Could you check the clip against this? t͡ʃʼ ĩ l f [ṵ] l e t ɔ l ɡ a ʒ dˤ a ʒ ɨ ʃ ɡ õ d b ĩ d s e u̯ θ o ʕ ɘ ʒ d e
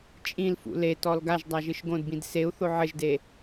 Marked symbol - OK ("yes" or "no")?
yes